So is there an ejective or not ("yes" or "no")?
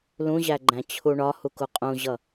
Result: yes